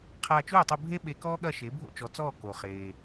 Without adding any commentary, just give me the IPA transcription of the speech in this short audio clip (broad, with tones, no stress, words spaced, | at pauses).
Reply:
qʰaː˧t͡ʃuː˥˩tˤu˧ bʱe˥ ɓe˧kɔː˥ɠɐ˥˩ʃe˩˥ bʱo̰˥t͡ʃɔ˩˥t͡sɔː˥˩ ko˩χeː˩